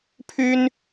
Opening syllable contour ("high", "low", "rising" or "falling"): high